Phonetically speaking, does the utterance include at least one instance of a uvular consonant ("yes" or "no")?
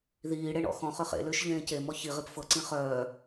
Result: yes